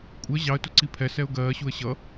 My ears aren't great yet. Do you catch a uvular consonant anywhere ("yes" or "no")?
no